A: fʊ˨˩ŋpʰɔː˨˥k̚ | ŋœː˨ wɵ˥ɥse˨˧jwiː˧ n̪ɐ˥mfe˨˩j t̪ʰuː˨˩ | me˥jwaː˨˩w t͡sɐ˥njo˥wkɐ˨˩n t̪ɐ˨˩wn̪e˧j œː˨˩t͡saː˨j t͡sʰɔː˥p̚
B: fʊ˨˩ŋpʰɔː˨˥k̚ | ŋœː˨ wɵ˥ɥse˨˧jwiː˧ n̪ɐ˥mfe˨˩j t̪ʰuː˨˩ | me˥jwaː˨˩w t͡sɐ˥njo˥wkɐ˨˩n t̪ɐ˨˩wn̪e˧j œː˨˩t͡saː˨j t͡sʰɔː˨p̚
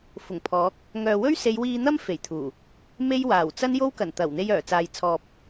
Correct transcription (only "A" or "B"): B